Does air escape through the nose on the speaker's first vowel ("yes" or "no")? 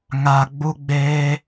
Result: no